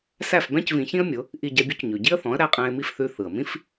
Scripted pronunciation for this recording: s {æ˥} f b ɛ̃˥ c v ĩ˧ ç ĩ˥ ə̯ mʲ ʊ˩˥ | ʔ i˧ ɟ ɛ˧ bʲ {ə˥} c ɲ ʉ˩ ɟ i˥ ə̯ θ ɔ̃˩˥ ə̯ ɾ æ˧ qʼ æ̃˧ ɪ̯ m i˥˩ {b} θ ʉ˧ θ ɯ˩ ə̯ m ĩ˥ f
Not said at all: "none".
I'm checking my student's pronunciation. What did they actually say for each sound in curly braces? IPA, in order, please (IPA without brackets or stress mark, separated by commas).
æ˥˩, ʉ˥, f